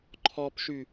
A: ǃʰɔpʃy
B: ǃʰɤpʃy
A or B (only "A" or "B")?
A